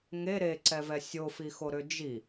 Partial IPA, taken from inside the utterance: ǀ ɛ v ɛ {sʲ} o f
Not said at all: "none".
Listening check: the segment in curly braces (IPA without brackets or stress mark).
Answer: sʲ